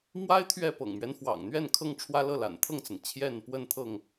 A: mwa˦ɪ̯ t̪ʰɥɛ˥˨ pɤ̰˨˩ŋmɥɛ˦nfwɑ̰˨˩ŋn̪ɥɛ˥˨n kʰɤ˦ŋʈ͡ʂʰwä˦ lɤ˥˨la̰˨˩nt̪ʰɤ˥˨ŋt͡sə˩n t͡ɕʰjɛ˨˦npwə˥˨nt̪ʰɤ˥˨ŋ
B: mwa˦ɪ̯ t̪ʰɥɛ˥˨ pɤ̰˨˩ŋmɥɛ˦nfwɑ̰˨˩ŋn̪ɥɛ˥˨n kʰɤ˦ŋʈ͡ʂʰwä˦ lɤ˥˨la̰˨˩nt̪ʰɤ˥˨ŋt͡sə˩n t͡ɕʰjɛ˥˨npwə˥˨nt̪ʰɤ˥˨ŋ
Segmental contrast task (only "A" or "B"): B